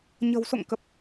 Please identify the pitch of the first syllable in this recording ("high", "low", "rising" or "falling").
low